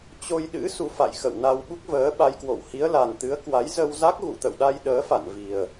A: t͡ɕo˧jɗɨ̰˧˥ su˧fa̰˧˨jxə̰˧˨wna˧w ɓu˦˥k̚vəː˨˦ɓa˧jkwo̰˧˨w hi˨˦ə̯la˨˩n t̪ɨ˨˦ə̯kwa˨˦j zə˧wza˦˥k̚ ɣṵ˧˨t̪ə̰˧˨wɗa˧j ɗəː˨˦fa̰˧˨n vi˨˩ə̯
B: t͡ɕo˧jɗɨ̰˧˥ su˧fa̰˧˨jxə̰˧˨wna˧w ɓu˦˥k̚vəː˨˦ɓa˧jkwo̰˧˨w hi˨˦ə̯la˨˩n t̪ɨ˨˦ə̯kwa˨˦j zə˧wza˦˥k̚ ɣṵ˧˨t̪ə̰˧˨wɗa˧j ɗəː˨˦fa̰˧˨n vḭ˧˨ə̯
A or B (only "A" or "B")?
A